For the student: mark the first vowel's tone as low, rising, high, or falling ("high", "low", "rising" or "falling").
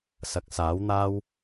rising